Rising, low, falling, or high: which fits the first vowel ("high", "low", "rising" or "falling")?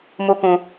high